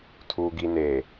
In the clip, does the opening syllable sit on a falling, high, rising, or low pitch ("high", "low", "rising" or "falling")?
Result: low